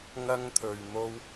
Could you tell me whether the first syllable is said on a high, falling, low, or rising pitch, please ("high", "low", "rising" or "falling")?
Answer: high